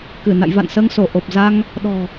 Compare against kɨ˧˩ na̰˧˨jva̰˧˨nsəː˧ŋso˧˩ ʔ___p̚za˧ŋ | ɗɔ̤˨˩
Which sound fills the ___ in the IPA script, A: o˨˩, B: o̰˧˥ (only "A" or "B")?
A